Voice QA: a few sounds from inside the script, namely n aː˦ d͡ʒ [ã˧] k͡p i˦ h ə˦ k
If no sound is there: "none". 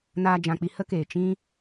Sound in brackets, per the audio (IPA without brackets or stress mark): ã˧